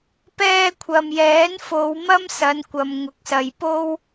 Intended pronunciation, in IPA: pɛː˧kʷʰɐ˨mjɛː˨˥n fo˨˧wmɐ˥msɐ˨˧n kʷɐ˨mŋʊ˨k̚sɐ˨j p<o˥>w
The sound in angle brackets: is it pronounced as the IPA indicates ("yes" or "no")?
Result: yes